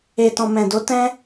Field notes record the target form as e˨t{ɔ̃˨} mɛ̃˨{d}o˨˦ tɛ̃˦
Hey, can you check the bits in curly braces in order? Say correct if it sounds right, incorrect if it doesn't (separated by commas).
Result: correct, correct